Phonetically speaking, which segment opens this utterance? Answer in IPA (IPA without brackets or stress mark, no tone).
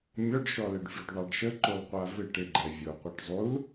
mʲ